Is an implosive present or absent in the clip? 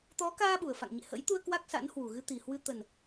present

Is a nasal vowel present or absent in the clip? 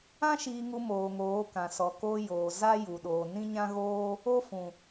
present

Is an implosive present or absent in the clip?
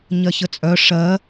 absent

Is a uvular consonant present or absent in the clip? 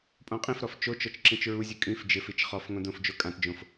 present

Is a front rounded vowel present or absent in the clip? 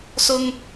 absent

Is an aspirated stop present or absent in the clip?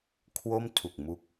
present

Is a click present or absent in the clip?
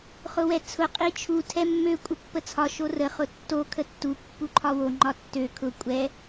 present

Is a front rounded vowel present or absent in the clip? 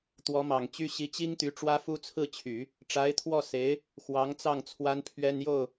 present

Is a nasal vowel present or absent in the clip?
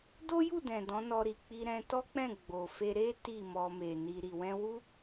present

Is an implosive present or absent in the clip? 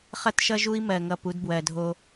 absent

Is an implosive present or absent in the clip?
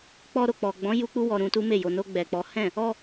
absent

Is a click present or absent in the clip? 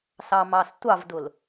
absent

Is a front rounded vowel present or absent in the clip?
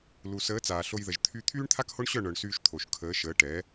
present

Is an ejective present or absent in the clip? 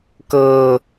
absent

